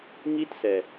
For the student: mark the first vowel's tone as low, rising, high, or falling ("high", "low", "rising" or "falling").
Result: high